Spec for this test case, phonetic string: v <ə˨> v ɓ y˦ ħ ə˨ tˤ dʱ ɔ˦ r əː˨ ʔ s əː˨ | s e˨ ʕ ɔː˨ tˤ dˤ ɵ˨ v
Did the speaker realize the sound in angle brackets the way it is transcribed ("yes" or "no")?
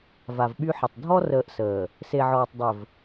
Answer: no